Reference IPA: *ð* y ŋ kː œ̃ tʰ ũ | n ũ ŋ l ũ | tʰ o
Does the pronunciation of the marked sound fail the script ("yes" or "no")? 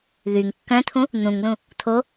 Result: no